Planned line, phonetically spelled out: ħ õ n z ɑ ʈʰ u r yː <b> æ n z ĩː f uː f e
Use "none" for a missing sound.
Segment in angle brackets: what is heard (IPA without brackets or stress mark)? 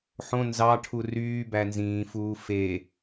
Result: b